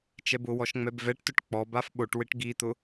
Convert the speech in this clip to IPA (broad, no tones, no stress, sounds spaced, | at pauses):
t͡ʃ ɛ b ʊ w ɔ ʃ ŋ͡m ɛ b v ɛ ʈ t ʊ ʈ k͡p ɔ b a f ɓ o ʈ w ɪ ʈ ɡ i t̪ ʊ